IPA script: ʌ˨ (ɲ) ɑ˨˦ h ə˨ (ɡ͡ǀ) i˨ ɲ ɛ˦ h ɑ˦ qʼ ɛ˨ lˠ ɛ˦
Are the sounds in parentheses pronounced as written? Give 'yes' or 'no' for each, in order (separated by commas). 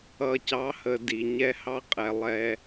no, no